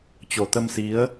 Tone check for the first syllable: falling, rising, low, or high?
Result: low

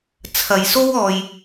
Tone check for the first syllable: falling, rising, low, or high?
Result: low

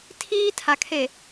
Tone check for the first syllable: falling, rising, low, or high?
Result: high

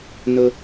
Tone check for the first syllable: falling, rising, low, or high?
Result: high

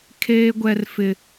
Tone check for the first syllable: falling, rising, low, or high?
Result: high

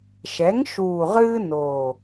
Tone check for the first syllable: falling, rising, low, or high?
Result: rising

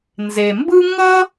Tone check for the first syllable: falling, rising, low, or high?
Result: low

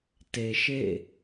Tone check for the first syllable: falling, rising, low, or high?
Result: low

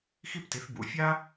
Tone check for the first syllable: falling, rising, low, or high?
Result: high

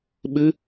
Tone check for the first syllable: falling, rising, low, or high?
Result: rising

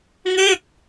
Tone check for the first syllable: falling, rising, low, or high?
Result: falling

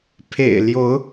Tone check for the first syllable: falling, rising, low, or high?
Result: low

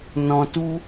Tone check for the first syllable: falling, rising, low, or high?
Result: low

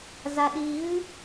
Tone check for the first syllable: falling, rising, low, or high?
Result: low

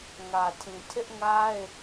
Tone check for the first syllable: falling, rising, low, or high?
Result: low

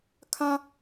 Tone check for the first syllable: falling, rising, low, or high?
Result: high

